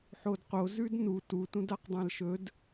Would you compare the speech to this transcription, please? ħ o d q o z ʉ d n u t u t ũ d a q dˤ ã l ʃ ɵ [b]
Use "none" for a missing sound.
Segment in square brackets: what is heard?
d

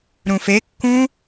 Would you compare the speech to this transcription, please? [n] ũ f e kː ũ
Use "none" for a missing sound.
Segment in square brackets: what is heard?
ɾ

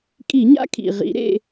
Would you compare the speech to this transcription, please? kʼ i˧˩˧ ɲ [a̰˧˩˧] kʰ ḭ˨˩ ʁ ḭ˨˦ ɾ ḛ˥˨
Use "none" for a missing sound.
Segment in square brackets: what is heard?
a̰˦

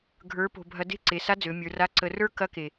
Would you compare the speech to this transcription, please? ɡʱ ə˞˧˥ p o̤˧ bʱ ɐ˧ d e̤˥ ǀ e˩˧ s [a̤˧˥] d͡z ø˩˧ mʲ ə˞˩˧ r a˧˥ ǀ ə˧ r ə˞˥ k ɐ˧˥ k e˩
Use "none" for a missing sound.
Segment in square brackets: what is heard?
a˧˥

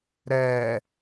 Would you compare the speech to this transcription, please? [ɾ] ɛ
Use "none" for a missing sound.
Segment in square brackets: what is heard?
ɾ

